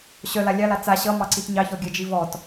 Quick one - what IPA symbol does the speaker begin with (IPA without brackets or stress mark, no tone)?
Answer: ɕ